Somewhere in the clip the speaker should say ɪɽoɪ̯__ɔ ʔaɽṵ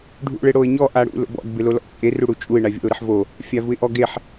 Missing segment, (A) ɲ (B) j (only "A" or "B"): A